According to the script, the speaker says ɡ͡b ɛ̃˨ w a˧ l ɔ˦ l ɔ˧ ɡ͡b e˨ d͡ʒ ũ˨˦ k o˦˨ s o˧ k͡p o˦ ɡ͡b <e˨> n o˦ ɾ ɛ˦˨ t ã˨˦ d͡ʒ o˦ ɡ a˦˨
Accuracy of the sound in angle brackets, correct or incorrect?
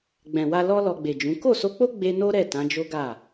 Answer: incorrect